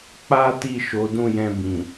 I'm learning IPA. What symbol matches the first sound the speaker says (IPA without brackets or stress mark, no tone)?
k͡p